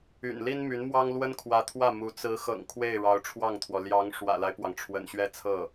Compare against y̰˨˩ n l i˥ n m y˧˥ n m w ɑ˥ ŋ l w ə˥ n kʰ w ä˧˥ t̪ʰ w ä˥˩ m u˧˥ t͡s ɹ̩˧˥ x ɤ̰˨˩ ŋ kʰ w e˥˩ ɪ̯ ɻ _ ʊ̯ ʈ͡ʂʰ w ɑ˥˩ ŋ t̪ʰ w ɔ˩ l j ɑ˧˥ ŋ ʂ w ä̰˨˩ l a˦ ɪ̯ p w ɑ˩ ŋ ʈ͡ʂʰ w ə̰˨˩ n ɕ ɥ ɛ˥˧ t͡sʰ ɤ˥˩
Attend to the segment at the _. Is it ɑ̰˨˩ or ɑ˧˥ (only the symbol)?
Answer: ɑ˧˥